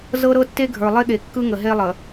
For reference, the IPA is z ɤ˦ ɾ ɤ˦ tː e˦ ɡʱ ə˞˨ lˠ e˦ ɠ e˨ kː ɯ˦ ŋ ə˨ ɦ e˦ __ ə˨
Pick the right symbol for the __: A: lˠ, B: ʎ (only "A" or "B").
A